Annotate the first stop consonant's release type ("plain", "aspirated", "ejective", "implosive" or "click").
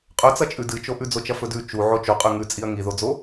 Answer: ejective